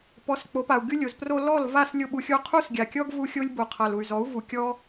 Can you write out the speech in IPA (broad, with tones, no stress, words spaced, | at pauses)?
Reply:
pɔ˨˦s k͡po˨˦pa˨u̯ɡy˦lʲo˨z pro˧lɔ˦˨l va˦˨slʲo˧ɓu˨xʲo˧ qʰu˦sɡʲa˨kʲɔ˦ɡ vu˦xʲo˦lʲbo˨ qʰa˨lu˨y̯zɔ˨˦u̯vu˨ kʲɔ˦